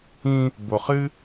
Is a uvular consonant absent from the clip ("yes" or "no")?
no